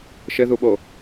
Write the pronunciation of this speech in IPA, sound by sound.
ʃ ɘ ð u ɓ o

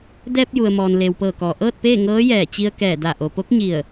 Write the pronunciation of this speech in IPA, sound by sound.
d ɛː˧ p̚ j u˩ ə̯ m ɔː˩ n l eː˩ w p ɤː˧˩ k ɔː˩ ʔ ɤː˥˨ t̚ p eː˥˨ ŋ ɤː˧˥ j ɛː˧˩ t͡ɕ i˧ ə̯ k ɛː˧˩ d a˧˩ ʔ o˩ p o˧˥ k̚ ɲ i˧˩ ə̯

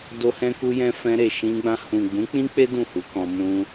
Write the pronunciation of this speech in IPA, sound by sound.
d o˧ h ɛ̃˧ k u˧ j ɛ̃˧ f ɛ̃˧ ɾ e˨ ʃ ĩ˧ ɡ͡b ã˧ h ũ˨ ɡ͡b ũ˨˦ k͡p ĩ˦ k͡p e˦ d ũ˦˨ h u˨˦ k ɔ̃˧ m ũ˧

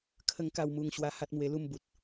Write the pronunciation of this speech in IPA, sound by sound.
kʰ ə˥˧ ŋ k a˥˧ w m u˧ ŋ ɕ w a˧ h a˦ t̚ m w e˧ l u˥˧ m b u˨ t̚

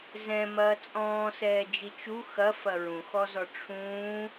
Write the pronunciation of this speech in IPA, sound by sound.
z ɛ̃ m ɐː t͡sʼ ɔ̃ː s ɛː d͡ʒ i t͡ʃ u x ɐ f ɐ ɹ ũ x ɔ z ɔ ʈ͡ʂʰ ũː

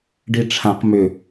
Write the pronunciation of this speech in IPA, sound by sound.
ɖ i ʈ͡ʂʰ ã q m ʏ

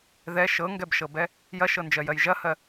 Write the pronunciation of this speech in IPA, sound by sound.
ð ɛ ʃ ɤ ŋ ɡ ɛ b ʃ ɤ b ɛ | j ɐ ʃ ɤ n d͡ʒ ɜ j ɜ j ʒ ɐ h ɜ

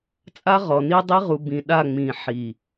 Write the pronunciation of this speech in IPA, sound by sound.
t͡sʼ a˦ ʁ ɔ˨ n i˦ dˤ i˦ ʁ u˨ b ĩ˨ ɗ a˦˨ ŋ͡m ĩ˨ ħ i˨

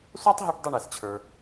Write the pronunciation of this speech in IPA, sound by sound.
sʷ a˥ tˤ ɦ ø˦ ʈ dˤ ɵ˦ ɳ ɛ˨ s t͡ɕʰ ə˞˨

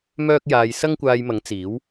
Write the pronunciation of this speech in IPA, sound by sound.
m œː˥ k̚ j aː˧ j s ɐ˥ ŋ kʷ aː˧ j m ɐ˨˥ ŋ t͡s iː˨˥ w

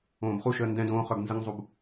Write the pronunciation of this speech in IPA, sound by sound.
õː b χ u ʃ əː n d ɛ̃ d õː χ œ b n z ə ŋ zˤ u b

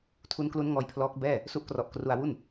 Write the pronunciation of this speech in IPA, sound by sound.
tʰ u˦˥ n k l u˦˥ n ŋ ɔː˦˥ j pʰ l ɔː˦˥ k̚ b ɛː˥˩ | s u˦˥ ʔ k r ɔ˨˩ ʔ k r u˧ a̯ w u˥˩ n

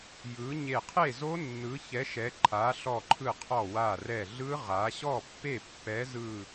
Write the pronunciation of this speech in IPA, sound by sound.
j ɯ˨˦ ɲ e˧˩ qʰ e˥˨ z o˦˥ nː ɯ˨˦ ç ɛ˨˦ ʃ ɛ˨˦ ǃʰ a˨˦ ɬ ɔ˧˩ ǃʰ ɯ˧˩ qʰ ɔ˧˩ w a˧˩ r ɛ˧˩ ɮ ɯ˦˥ ʁ a˨˦ ɕ ɔ˥˨ pː e˥˨ pː ɛ˨˦ z ɯ˧˩

